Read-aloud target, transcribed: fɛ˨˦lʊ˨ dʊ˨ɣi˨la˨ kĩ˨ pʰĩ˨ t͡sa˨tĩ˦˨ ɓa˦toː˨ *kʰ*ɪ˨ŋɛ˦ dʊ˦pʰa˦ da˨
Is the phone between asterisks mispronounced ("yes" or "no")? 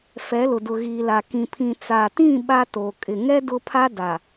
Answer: yes